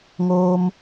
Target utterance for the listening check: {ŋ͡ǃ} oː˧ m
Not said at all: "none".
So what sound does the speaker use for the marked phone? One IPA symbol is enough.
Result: ŋ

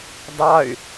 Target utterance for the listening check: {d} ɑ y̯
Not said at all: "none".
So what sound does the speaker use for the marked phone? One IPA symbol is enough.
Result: d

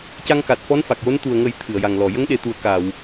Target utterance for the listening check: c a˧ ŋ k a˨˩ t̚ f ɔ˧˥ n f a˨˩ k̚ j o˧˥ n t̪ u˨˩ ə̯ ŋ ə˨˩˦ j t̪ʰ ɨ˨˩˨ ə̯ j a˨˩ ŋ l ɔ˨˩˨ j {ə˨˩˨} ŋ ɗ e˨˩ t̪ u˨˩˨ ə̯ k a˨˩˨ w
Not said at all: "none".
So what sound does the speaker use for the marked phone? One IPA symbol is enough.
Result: ə˧˥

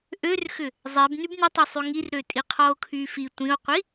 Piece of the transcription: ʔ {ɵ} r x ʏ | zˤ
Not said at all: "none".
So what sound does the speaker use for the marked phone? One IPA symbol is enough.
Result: ø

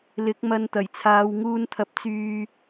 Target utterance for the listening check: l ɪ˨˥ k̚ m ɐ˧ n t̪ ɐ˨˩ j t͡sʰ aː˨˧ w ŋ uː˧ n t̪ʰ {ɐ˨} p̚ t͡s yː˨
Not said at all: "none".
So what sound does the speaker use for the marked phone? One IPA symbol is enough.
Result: ɐ˨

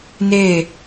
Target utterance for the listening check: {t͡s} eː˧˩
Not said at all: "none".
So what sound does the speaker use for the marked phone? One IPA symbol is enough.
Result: n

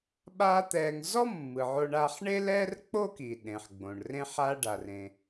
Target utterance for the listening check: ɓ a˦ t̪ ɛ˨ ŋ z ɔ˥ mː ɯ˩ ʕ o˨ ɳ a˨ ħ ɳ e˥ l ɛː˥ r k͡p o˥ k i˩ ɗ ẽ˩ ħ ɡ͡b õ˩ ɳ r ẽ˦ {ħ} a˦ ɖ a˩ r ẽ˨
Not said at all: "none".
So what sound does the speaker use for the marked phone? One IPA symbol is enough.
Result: ħ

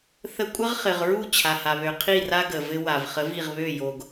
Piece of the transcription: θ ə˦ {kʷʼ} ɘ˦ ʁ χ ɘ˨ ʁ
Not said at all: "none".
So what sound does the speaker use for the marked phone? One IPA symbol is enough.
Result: kʷʼ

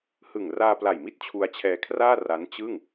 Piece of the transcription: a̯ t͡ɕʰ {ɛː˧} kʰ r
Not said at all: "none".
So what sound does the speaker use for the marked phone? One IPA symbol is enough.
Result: ɛː˧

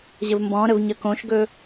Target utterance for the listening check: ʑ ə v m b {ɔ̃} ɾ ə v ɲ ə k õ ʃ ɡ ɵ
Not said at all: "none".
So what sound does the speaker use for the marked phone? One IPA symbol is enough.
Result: ɔ̃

